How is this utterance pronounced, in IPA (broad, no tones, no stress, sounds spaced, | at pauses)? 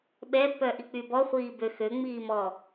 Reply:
ɓ ɛ pː œ ʔ i k͡p y b ɔ χʷ iː b ø x ø ŋ͡m iː m ɔ